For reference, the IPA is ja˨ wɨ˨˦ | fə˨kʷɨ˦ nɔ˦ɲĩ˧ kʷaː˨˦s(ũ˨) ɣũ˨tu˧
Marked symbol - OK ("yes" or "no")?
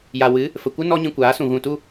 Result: yes